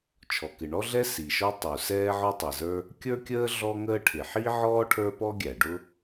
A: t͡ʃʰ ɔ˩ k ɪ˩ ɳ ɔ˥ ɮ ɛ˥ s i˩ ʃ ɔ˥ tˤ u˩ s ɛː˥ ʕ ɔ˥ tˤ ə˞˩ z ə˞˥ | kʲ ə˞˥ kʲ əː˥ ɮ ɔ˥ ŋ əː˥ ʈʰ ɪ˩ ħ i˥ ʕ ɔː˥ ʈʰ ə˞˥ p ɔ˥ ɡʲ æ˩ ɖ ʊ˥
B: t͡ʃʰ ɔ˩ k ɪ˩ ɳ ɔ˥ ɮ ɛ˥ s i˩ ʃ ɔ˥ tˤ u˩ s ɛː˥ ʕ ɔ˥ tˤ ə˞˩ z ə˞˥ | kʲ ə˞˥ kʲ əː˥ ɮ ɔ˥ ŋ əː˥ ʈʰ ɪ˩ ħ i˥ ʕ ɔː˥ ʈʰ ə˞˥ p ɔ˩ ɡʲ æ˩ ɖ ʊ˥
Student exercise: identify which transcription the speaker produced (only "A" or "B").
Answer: A